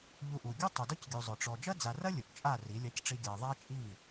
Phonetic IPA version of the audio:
ʎ u˧ ʔ u˨ ɡʲ u˦ tˤ u˨ d ɔ˦ c ɡʲ u˨ zˤ ʊ˨ ʈ͡ʂ ɔ˨ d͡ʒ ɐ˦ d͡z a˨ r ɐ˦ lʲ ʊ˨ ʔ t͡ʃʼ a˦˨ r i˨˦ lʲ a˦ c ʈ͡ʂ i˦ ɡʲ a˧ ɪ̯ ðˤ a˦ t͡ʃʼ i˦˨

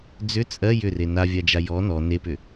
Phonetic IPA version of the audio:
d͡z ʏ t͡sʼ ɜ j ʏ r e n a vʲ a d͡ʒ a j ɔ n ɔ n e p ʏ

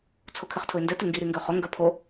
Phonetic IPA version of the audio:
t͡sʰ o kʰ ɪ χ tʰ ʊ ɪ̯ n d ɛ t ɪ ŋ ɡ i ɾ i ŋ ɡ ø χ ʊ ŋ ɡ œ pʰ o

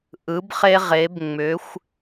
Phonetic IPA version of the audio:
ʔ ɯ˩˧ b χ e˧ ʁ e˩˧ b ŋ͡m ʏ˩˧ xʷ

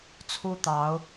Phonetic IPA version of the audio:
t͡sʰ u˦ t̪ ɑ˨˦ ʊ̯

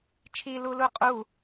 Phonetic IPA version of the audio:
t͡ʃʰ i l u l u qʼ u

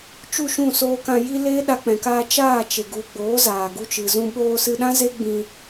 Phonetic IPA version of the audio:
t͡ʃ u˦˨ ʃ ũ˦˨ s oː˧ k ã˧ j i˦ l eː˦ ɗ a˧ k͡p ɛ̃˨ k a˧ t͡ʃ aː˦˨ t͡ʃ e˨ ɡ u˨ ɡ͡b oː˨˦ z aː˨ ɡ u˧ t͡ʃ ɨ˨ z ũ˧ ɓ oː˧ s ɨ˧ ɗ ã˦ z e˦ ɡ͡b ĩ˧

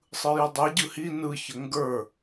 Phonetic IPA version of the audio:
sˤ ɯ j ʉ dˤ e ɟ ɯ h i n ɯ ç ə ŋ ɡ ə˞

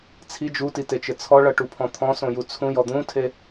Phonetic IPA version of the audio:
t͡sʰ i d͡ʒ u t i t e t͡ʃ ɘ t͡sʰ ɔ ɭ ʌ ʈ u pʰ ɔ̃ t̪ʰ ɔ̃ s õ j u t͡sʰ ũ j ɔ d̪ ũ tʰ e

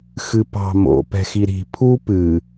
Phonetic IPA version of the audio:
x ɨ p ɑ̤ m o̰ p ɛ̤ x i ɾ i̤ pʰ u p ɨ

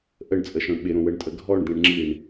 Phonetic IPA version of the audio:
ʔ ə ɳ t͡sʼ ə ʃ ɔ̃ ɳ ɓ ɪ ɾ õ w ə ɳ tʼ ə ɡʱ ɔ ɳ d̪ ɛ̃ ɳ ŋ͡ǁ i ɳ

